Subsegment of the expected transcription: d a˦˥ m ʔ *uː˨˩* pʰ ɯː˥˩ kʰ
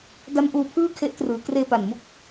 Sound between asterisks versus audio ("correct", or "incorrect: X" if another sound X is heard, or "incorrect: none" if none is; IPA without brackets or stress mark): incorrect: uː˧